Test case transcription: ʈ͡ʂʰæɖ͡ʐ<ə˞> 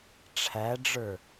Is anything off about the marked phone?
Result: no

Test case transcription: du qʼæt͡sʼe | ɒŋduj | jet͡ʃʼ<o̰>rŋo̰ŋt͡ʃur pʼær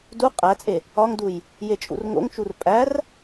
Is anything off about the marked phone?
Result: yes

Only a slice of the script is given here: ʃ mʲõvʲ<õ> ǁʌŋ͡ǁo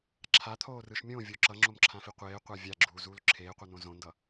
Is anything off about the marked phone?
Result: yes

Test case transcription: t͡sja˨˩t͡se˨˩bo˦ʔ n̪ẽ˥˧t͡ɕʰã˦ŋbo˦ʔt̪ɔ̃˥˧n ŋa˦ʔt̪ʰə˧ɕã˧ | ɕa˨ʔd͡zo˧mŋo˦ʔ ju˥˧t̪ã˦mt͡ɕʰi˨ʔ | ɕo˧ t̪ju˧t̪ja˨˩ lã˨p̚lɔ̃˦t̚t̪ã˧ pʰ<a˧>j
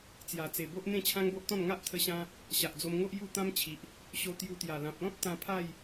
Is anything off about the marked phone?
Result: yes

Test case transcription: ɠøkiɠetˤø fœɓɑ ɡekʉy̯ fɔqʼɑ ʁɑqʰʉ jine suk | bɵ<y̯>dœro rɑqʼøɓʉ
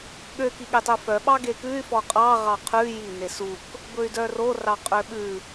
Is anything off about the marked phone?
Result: no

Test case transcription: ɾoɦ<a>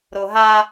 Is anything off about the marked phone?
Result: no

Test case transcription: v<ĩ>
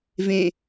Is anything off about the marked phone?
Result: yes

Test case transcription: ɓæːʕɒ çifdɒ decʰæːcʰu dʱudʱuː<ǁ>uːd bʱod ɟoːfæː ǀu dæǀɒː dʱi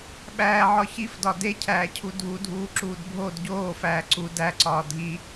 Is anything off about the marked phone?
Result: no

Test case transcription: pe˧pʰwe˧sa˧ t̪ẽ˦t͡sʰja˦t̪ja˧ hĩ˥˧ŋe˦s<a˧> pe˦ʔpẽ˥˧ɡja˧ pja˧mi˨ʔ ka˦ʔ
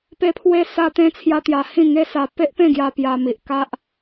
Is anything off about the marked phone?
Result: no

